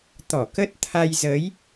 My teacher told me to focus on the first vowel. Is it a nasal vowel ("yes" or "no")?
no